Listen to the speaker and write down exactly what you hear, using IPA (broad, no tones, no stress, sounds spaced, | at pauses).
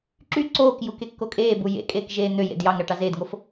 ǁ y ǀ oː k j u k e kː o kʼ eː b u j ḛ kʼ eː k ʒ eː n̪ ø j ḛ d j ɑ ŋ ɾ ɑ ʈ ɑ z eː d ŋ o f